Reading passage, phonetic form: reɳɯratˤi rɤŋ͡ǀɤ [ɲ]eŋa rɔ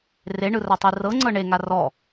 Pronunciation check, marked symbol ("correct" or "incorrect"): incorrect